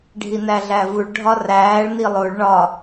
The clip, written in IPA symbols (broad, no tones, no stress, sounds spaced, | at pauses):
ɖʱ i n æ ɮ æ v u ɭ ɖʱ ɒ r æː ɭ n i lˠ o ɭ ɳ ɒ